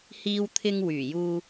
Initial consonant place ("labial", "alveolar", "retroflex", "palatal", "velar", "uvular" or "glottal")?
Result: glottal